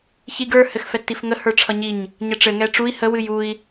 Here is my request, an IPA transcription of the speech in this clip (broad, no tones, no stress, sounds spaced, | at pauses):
ç i ɡ ə˞ h ɘ x f ɛ tː i f ŋ ə h ə˞ ʈ͡ʂʰ ʌ ɲ i ɲ | ɲ ə ʈ͡ʂ ɘ ŋ ɛ ʈ͡ʂ u i̯ h ə w ɨ j u i̯